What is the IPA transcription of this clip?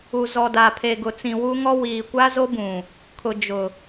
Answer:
u˨ z ɔ˨ d a˨ pʰ e˨ ɡ ʊ˨ t͡s ĩ˨ w u˦ ŋ ɔ˦ w iː˨ kʷ a˦ z o˦ b ũ˨ | kʰ ʊ˨ d͡ʒ ʊ˨

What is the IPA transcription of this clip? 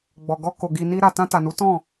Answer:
ɡ͡b ɔ˨ ɡ ɔ˧ k o˨ ɡ i˨ n i˧ ɾ a˨ t ã˧ t a˨ n u˨˦ t ɔ̃˦˨

